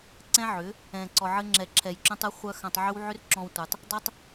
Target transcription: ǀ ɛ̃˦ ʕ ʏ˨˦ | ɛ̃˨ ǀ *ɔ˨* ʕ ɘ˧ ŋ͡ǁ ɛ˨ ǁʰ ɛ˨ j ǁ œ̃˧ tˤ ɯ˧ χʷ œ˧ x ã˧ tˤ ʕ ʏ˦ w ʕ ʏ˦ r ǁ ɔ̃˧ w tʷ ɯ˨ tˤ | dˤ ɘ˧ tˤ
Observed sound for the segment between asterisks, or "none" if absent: ɔ˨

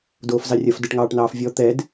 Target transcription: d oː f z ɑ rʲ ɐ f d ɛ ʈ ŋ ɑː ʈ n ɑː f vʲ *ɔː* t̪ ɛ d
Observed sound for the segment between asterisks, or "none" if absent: ɔ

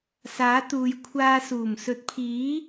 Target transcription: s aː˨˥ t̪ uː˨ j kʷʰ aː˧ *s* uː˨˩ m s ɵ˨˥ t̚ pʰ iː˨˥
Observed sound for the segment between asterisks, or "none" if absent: s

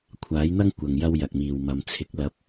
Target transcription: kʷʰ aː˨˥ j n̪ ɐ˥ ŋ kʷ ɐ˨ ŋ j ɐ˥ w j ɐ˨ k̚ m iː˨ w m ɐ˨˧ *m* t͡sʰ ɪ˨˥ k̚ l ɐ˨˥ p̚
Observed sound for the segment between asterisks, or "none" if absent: m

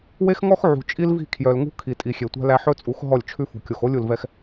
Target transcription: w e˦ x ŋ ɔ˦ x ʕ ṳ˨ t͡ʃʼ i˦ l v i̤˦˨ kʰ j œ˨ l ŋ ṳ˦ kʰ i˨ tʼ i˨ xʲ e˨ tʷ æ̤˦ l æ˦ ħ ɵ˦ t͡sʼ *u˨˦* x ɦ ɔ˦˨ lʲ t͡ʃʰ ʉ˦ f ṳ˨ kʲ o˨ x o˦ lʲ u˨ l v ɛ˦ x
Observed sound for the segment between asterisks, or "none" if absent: u˨˦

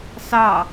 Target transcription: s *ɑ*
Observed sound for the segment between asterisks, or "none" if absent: ɑ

